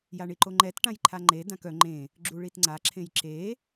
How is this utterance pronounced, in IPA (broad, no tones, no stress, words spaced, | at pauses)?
jaɳiǃoŋ͡ǃɛt ʈãjǃʰaŋ͡ǃe dãkœ ŋ͡ǃẽ | ɡ͡ǁuɭitŋ͡ǀa ǁʰẽjǁe